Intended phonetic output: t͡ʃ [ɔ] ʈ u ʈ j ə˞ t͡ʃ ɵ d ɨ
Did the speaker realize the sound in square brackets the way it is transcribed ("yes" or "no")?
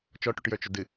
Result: yes